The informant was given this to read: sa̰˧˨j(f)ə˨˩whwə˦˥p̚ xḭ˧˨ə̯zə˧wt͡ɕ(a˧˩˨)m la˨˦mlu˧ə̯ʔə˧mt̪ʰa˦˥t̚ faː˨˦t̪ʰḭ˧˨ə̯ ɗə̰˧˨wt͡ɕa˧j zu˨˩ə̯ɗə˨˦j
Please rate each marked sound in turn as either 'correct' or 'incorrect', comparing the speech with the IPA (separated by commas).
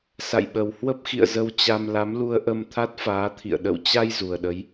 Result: incorrect, incorrect